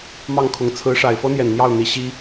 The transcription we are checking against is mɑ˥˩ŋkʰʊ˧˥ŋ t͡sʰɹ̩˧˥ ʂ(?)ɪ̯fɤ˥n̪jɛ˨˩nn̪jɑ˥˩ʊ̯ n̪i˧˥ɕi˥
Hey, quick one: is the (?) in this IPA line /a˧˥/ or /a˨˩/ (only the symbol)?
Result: a˨˩